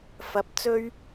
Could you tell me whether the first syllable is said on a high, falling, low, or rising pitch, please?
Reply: rising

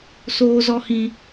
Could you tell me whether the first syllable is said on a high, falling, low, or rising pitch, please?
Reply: high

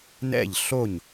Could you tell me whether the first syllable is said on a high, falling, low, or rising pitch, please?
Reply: falling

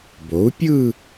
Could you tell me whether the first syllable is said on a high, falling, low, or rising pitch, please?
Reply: rising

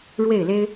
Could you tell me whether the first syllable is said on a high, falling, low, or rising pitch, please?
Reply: falling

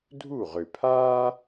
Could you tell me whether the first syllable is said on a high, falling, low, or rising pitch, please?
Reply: falling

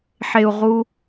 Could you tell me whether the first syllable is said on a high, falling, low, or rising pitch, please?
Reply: low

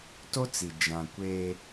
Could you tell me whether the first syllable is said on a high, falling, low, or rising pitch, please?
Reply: high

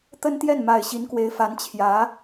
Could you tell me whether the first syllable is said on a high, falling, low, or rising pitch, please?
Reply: high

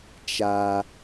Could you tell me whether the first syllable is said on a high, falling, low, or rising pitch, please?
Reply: high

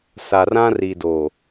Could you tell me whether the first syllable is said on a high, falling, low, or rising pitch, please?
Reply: low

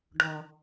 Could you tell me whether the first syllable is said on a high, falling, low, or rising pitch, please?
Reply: low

